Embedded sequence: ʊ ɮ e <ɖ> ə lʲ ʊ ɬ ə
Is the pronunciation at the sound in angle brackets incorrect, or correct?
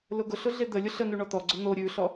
incorrect